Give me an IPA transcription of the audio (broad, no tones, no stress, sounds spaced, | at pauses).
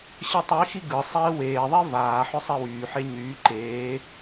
ɕ ɯ tˤ i x i ɡ ɯ sˤ eː w eː ðˤ i v aː ħ ʏ sˤ e w yː ħ e ɲ yː ǃ eː